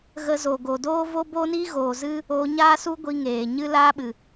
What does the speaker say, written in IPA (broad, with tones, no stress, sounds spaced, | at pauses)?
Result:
ɣ ə˧ z o˨ ɡ o˨ d oː˦ v o˦ b o˦ n i˦ ɣ oː˨ z ɨ˦ | oː˧ ɲ aː˦ s u˦ ɡʷ i˧ ŋ eː˨ ɲ ɨ˦ l aː˦ ɓ ɨ˨